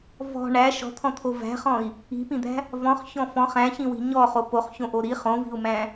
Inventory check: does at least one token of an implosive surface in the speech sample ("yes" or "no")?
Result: no